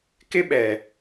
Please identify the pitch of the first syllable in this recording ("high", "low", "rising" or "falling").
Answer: high